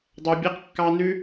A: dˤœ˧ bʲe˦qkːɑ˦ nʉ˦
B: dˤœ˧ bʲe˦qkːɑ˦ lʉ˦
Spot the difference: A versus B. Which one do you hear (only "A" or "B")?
A